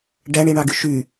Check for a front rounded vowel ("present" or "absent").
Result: present